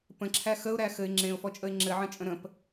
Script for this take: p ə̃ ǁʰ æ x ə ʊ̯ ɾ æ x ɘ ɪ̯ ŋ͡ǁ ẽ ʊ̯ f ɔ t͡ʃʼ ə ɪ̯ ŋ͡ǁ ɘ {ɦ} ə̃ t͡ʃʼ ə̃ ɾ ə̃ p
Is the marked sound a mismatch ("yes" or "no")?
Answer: yes